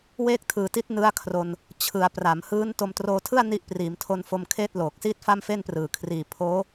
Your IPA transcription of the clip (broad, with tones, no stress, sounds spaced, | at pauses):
w eː˥˩ k̚ tʰ ɯː˨˩ t i˦˥ t̚ n ɯ˦˥ a̯ kʰ r o˧ n | t͡ɕʰ ɯ˩˦ a̯ p r a˩˦ m h ɯː˦˥ n t o˧ m t r oː˧ tʰ ɯ˥˩ a̯ n i˦˥ ʔ p r iː˩˦ m tʰ o˧ n f o˧ m kʰ eː˥˩ t̚ l oː˨˩ k̚ s iː˥˩ t̚ f a˥˩ m f e˥˩ n p r ɯː˨˩ kʰ r iː˨˩ pʰ oː˦˥